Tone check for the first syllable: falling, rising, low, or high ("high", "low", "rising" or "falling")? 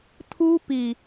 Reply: high